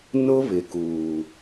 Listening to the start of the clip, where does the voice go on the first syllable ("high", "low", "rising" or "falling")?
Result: high